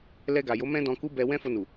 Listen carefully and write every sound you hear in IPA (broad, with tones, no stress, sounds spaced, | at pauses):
l ɛ˧ ɡ a˨ j o˨˦ m ɛ̃˦ d ɔ̃˧ k u˦ b ɛ˧ w ɛ̃˦ f o˧ n u˨